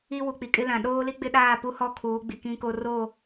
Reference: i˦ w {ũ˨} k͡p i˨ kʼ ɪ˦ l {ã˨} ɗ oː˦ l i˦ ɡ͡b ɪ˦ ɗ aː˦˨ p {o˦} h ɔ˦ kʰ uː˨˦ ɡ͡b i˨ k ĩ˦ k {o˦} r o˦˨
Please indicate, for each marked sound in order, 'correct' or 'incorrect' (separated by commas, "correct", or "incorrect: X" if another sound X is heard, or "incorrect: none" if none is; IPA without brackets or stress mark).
incorrect: u˨, correct, incorrect: u˦, correct